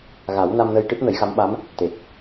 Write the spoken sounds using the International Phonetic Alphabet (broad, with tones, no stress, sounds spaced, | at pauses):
ɣ a˨˩˦ w n a˧ m n ə˧ j ʈ ɨ˦˥ t̚ n ə˨˩˦ j x a˧˥ m ɓ a˧˥ m | t̪ e˨˩ k̚